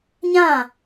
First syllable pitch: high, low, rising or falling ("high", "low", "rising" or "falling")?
falling